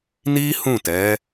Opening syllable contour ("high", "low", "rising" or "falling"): high